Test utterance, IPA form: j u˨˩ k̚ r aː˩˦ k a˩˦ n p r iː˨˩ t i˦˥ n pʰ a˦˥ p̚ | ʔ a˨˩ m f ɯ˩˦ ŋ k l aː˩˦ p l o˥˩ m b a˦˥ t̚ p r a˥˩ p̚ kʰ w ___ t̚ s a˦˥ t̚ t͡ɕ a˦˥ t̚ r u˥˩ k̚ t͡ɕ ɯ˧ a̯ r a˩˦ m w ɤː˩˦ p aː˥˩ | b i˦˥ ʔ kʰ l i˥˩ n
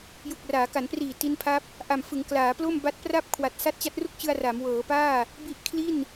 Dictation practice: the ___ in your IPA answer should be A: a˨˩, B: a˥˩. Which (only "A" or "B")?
A